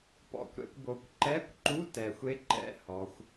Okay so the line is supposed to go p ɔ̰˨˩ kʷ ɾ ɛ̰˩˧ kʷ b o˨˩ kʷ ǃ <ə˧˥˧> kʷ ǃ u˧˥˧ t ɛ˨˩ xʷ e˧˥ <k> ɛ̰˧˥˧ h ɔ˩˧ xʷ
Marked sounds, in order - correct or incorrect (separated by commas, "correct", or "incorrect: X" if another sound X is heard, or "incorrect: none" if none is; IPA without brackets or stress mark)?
incorrect: ɛ˧˥˧, incorrect: ǃ